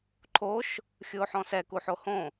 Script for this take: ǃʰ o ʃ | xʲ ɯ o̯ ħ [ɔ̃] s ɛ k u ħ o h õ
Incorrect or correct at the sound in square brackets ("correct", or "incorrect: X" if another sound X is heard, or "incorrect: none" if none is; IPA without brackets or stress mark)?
correct